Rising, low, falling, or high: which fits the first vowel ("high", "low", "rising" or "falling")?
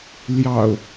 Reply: low